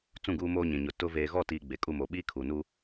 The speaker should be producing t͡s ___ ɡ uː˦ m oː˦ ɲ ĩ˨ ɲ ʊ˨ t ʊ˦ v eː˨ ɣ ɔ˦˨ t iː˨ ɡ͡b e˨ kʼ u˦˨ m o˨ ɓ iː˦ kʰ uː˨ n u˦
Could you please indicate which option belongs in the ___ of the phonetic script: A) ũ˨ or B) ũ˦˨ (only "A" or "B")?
B